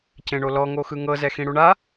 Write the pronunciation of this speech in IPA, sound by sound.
cẽɳolɔ ŋoxɯŋɤ zɛxĩɽuɳa

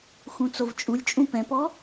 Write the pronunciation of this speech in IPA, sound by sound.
xũt͡sovt͡ʃʼulʲt͡ʃʼũ pɛ̃pɔ

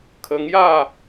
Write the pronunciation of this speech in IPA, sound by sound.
kʰə˧ŋja˥˧

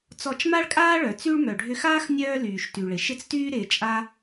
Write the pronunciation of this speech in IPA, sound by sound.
t͡sɔ˧t͡ʃma˥ɭkʼaː˥ɭœ˩ t͡sy˧ɭ mœ˩ɖʱʏ˧xaː˥x nʲœː˧ lyː˩ʃty˩ɭɪ˩ ʃɪ˧t͡styː˧ɾɪː˩t͡ʃʼa˧

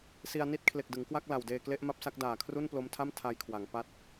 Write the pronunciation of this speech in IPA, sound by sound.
si˧a̯ni˥˩t̚ kʰle˨˩k̚dɯ˩˦ŋkwa˥˩k̚ la˨˩wdeː˧ kle˦˥ʔma˦˥p̚sa˦˥k̚ daː˨˩kʰru˥˩nplo˦˥mtʰa˥˩m tʰa˧jkʰwa˩˦ŋ pa˦˥t̚

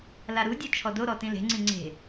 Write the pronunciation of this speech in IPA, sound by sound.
laɾudʲu t͡ʃʰɔdoɾɔ tĩle̤ŋ͡ǀĩ ŋ͡ǀe̤

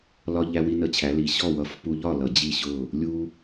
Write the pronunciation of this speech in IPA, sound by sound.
lɒ˧ ʎæ˧wi˧nə˧˩˧t͡ɕʰæ˩˧ li˩˧ɕɔ˥˨wʌ˧˩˧f pu˧ʎɒ˥˨ lʌ˧˩˧d͡ʑi˥˨ɕʊ˥˨ | lʲu˧

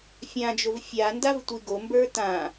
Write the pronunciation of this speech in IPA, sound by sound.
fʲãd͡ʒov fʲandav tʷiɡombə˞ tã

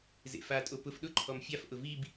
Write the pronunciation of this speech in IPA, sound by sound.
zḛfatʼo pʊf ɗʊǃʰɔm fʲaf ʔʊvib

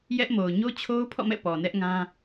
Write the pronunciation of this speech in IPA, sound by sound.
jɛ˦ʔmo˨ʊ̯ ɲo˦t͡ɕʰo˦ʊ̯pʰɔ̰˦˨mɛ̰˦˨ pɔ˨nɛ˦ʔŋã˦

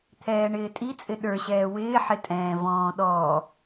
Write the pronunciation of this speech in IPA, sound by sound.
t̪ʰɛːɳɪːtʼit͡sʼɪ ɗə˞ɕɛː wɪːħɪtʼɛ̃ː vɔ̃ːɗɔː

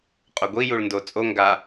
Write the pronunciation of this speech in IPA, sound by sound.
qʼoɡʷi juɭndo t͡sʼo ŋɡa

